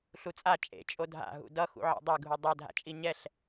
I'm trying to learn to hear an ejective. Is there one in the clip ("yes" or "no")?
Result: yes